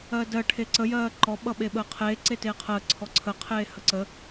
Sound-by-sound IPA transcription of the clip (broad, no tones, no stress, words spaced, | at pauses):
ɜdɜ ʈʰeǀəjɜː ǃɔɓʌ ɓeɓəːqʰeː ǀeteːqʰəː ǀʰɔǀʰəqʰeːhə ǀə